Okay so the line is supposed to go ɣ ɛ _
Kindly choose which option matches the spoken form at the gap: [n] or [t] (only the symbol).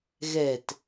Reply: t